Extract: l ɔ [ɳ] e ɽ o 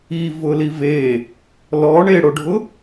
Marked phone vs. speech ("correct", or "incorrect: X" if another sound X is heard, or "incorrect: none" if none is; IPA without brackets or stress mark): correct